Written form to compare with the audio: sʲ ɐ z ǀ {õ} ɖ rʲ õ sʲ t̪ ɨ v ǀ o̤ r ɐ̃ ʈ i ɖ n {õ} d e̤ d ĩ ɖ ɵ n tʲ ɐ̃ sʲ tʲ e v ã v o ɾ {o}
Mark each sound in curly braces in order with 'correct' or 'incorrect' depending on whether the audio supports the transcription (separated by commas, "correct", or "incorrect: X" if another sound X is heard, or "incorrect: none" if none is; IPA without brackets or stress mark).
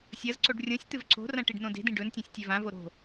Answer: incorrect: o, correct, incorrect: o̤